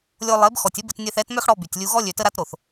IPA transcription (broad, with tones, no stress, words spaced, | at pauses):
lʲo˧ lˠe˨˦b xɔ˨tʲə˦bə˧t nʲɛ˧θɛ˨˦tmœ˦xɽɔ˧ by˨tʲlʲu˧ɣɔ˦ lʲø˨tə˧ɾa˧t ɾo˨θ